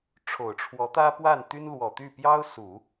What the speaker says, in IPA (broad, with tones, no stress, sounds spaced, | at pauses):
ʈ͡ʂʰ o˨˩ ʊ̯ ʈ͡ʂʰ w ɔ˧˥ t̪ ä˥ p w a˥˩ n t̪ y˥ n l w ɔ˨˩ t̪ y˥˩ p j ɑ˥ ʊ̯ s u˨˩˦